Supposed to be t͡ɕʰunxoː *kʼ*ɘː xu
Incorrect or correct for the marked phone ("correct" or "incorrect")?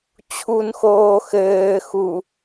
incorrect